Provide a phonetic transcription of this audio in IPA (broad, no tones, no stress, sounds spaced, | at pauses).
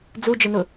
d͡z u d͡ʒ ɪ n ʊ